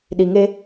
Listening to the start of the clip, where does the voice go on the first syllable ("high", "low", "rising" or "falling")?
low